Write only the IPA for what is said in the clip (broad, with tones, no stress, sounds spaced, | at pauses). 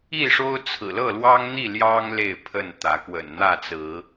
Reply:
i˥˨ ʂ o˦ ʊ̯ t͡sʰ ɹ̩˨˩ l ɤ˥˨ l w ɑ˦ ŋ n̪ i˥˨ l j ɑ˦ ŋ l e˥˨ ɪ̯ pʰ ə˥˨ n t̪ ä˨˦ k w ə̰˨˩ n n̪ ä˥˨ t͡s ɹ̩˨˦